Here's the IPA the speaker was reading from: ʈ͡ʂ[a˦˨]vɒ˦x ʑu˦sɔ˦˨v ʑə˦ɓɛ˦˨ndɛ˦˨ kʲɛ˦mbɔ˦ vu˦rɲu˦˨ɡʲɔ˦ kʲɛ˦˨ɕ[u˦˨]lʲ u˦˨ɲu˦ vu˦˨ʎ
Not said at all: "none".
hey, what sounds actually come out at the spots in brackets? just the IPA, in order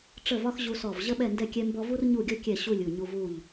ə˦˨, u˦˨

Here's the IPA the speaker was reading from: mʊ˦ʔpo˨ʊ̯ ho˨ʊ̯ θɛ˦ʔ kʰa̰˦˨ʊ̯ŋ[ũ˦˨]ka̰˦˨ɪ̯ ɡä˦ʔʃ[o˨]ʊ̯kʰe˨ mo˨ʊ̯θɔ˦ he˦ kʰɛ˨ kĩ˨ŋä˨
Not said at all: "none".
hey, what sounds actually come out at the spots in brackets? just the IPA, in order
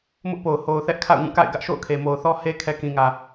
ũ˦˨, o̰˦˨

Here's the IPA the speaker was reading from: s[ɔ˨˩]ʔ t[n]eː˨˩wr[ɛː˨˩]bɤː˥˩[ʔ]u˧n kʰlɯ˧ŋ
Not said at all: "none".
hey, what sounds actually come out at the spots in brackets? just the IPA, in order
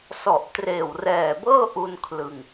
ɔ˨˩, r, ɛː˨˩, ʔ

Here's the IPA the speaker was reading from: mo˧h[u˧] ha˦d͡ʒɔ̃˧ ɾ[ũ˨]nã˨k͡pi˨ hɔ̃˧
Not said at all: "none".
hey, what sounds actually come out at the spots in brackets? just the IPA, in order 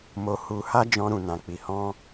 u˧, ũ˨

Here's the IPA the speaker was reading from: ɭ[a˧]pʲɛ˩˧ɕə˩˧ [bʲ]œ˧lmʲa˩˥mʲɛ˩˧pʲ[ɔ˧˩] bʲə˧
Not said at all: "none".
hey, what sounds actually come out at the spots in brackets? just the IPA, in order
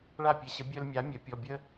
a˧˩, bʲ, ɔ˩˧˩

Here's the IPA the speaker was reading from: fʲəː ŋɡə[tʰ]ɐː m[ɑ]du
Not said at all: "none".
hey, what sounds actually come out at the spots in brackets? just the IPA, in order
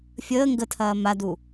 tʰ, a

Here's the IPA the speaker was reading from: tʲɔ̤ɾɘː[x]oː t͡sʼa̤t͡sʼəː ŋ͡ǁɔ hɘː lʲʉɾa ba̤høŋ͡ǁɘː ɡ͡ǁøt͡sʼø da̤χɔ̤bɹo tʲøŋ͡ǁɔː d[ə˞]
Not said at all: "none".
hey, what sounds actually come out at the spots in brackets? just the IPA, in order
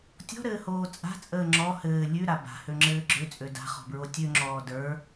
h, ə˞

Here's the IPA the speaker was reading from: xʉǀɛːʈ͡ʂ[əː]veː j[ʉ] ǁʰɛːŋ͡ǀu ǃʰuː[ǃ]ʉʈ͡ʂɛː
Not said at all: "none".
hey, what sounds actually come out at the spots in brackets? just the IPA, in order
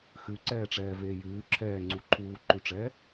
ɛː, ʉː, ǃ

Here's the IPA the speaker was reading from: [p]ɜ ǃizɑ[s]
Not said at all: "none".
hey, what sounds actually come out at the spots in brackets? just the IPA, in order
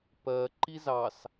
p, s

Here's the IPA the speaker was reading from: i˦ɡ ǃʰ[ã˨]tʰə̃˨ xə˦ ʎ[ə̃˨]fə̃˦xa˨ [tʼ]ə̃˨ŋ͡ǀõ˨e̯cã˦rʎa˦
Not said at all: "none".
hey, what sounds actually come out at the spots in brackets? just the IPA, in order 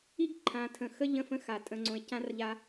ã˨, ə̃˦˨, tʼ

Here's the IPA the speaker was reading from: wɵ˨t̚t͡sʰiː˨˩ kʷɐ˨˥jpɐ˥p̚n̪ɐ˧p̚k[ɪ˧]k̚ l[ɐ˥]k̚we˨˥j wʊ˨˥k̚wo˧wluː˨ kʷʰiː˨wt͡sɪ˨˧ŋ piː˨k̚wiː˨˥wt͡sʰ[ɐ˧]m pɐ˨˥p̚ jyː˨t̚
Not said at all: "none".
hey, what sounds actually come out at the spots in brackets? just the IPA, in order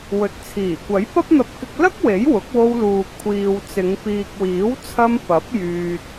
ɪ˧, ɐ˥, ɐ˧

